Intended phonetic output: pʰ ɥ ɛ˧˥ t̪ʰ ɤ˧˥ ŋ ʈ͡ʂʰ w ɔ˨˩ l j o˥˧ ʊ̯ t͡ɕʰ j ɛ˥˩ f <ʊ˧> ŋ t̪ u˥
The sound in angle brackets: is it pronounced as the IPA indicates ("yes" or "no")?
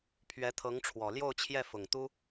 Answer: no